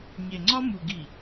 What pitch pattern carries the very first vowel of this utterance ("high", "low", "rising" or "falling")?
low